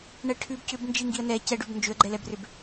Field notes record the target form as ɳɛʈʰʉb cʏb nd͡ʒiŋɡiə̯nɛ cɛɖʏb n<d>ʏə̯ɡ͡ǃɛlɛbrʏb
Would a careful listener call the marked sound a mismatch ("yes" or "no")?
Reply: yes